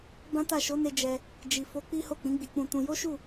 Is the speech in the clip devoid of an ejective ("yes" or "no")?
yes